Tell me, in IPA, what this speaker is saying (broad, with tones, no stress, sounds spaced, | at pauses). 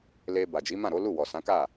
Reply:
l e˧ b a˨ d͡ʒ i˨˦ m ã˦˨ ɾ o˨˦ l u˦˨ w ɔ˨ s ã˨˦ k a˦˨